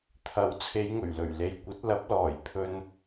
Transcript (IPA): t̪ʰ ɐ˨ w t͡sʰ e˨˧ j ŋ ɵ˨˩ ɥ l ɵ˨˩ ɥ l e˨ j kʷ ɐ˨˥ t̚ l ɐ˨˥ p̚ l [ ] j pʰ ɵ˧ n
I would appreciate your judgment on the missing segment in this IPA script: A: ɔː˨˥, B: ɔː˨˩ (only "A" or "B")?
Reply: B